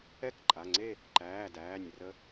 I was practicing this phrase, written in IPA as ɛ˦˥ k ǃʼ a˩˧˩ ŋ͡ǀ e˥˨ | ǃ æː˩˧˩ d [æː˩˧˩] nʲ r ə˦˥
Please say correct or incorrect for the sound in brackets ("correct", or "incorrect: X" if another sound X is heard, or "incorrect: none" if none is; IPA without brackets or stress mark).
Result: correct